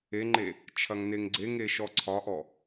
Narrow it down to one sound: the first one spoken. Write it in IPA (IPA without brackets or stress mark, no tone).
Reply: e